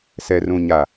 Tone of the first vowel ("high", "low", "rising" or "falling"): low